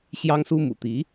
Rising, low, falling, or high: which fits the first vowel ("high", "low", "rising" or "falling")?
high